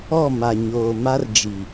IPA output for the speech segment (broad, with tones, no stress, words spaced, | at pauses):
ɔ˦˨ma˨ɲoː˨ma˦r d͡ʒi˨